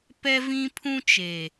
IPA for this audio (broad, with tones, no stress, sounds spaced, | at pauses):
p ɛ˦ v ĩ˦ pʰ ũ˦ t͡ʃ eː˨